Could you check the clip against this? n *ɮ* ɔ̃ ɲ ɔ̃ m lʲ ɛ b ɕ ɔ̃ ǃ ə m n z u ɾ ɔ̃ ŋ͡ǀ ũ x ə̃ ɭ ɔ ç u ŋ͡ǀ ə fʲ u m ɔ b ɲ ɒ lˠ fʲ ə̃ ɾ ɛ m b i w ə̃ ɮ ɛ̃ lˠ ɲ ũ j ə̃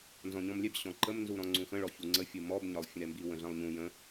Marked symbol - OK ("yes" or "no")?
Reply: no